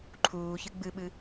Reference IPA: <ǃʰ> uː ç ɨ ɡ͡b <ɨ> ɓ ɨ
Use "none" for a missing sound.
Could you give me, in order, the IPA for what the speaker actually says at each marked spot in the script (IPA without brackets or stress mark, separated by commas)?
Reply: ǃʰ, ɨ